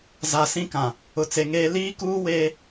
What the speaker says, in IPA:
z a˨ s ĩ˦ k ã˨ | ʊ˨ t͡s e˨ ŋ eː˦ l iː˦ k uː˦ w eː˦

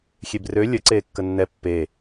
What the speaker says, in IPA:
xʲ e b r ø lʲ ə ǀ eː kː ə nː ɛ pː e

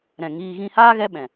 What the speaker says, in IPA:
ɾ ɛ̃˨ ŋ iː˧ ɣ ĩ˧ h aː˦ ɣ ɛ˦ ɓ ɛ̃˨

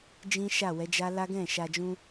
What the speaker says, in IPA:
d͡ʒ ĩ˦ ʃ a˦˨ w ɛ˨˦ d͡ʒ a˦ l a˦ ɡ ɛ̃˦˨ ʃ a˧ d͡ʒ ũ˦

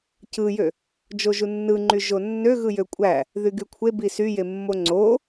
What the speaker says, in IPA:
c ɯ j ø | d͡ʒ o ʒ u nː ɯ ŋ͡ǃ y ʒ o nː ø ɣ ɯ j ø kʷʼ æ | ð y ɡ y kʷʰ e b i s y j e mː o ŋ͡ǀ o

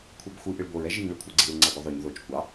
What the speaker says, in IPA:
kʷʰ i b xʷ ɨ ʔ ɨ ɭ b o ɹ ɛ ʒ i ŋ ɭ ɨ kʷʰ ɛ ɡ͡ǀ i ɹ ŋ͡ǀ a ɡʷ ɨ ðˤ o ɲ ð o t͡ʃ kʷ ɑ

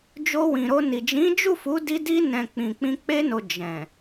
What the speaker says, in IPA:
d͡ʒ o˧ w ĩ˨ ɾ o˧ n i˨ d͡ʒ ĩ˨˦ d͡ʒ u˦˨ f u˨˦ d i˧ d i˧ n ɛ̃˨ k͡p ĩ˨ k͡p ĩ˧ k͡p e˧ n o˨ d͡ʒ ɛ̃˨

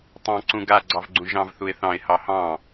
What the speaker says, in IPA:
tˤ ɑ̃ ǀ ũ ɡ a ɡ͡ǀ ɑ v ɡ͡ǀ ũ ʒ ɑ̃ v θ u ɪ̯ θ ɑ̃ ɪ̯ h ɑ h ɑ̃

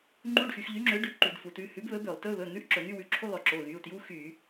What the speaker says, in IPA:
ŋ͡ǃ u˧˥˧ ɖ x y˩˧ x ʎ y˨˥ ŋ͡ǁ ø˨˥ ɖ ʉ˩˧˩ ǃ y˧˩˧ d f u˩˧ t ʉ˩˧˩ h ʉ˨˥ b β ɵ˨˥ b ø˧˩˧ lˠ t ɵ˧˥˧ β ɵ˩˧˩ n̪ ʉ˧˥˧ ʔ ǁ ɵ˧˩˧ n̪ y˧˥˧ w ʉ˩˧˩ ǁʰ u˧˥˧ lˠ ɵ˧˩˧ ǁ o˩˧˩ ɣ y˩˧˩ u̯ t j u˧˥˧ x y˧˩˧

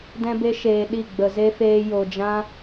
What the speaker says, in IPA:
d ɛ̃˦ b e˦ ʃ eː˧ ɗ i˦˨ ɡ͡b ə˧ z e˦ f eː˦ j o˧ d͡ʒ ã˦

